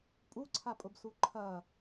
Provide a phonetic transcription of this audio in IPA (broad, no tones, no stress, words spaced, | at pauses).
pʼuǀʰapʼʊbsu ǃʰɐ